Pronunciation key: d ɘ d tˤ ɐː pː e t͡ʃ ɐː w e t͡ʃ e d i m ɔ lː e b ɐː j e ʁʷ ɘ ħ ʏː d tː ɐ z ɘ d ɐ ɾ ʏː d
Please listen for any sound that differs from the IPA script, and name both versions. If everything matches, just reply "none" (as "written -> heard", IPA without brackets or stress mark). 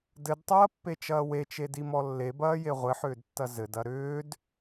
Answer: none